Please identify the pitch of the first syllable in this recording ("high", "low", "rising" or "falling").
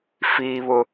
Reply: high